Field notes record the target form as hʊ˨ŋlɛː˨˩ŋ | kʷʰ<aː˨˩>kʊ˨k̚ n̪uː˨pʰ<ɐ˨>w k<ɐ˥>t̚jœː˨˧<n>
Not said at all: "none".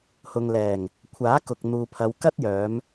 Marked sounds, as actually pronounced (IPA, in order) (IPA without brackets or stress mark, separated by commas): aː˨˥, ɐ˨˧, ɐ˥, m